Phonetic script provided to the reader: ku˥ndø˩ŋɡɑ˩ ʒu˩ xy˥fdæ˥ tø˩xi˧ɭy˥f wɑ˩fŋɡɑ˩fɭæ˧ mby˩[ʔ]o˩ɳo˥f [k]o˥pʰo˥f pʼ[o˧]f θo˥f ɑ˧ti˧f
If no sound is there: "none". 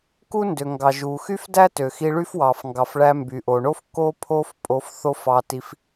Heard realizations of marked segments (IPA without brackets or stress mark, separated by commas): ʔ, k, o˧